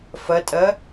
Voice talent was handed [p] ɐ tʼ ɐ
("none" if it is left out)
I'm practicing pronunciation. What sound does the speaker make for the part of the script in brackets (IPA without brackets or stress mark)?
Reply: f